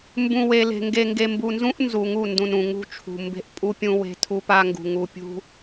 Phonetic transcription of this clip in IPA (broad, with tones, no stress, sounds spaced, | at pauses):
m b ũ˨ w e˨ l e̤˨ ŋ ɡ e˨ ŋ ɡ e˨ m b u˨ n z ũ˦ ʔ n z u˨ ŋ u˦˨ n d ũ˨ n ũ˨ ŋ ṳ˦ t͡ʃʰ ṳ˨ m b e̤˦ ʔ pʼ u˦ pʲ ũ˦ w e̤˦ tʰ u˦ p a˦ ŋ ɡ ṳ˨ ŋ u˨ pʲ ṳ˦